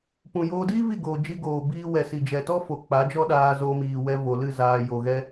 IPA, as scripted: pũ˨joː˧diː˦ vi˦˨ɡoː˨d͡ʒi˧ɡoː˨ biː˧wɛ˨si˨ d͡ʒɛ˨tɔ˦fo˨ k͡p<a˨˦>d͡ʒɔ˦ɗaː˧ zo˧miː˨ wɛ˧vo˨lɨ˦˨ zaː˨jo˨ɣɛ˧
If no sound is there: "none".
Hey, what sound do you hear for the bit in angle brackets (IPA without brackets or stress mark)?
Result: a˨˦